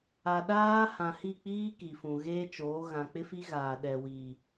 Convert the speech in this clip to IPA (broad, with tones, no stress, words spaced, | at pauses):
a˨ɗaː˦ hã˨hi˦˨k͡piː˦ ki˨fũ˨ɣeː˦t͡ʃoː˨˦ ɣã˨k͡pɪ˦fi˦ ɣaː˨ɗɛ˨wi˨